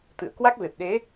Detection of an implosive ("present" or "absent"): present